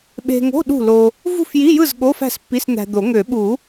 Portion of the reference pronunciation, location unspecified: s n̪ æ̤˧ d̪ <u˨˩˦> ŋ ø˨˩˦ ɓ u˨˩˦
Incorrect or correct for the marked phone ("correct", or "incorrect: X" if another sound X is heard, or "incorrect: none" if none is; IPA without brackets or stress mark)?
incorrect: o˨˩˦